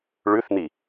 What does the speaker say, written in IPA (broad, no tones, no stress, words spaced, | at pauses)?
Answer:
ɭʉθn̪i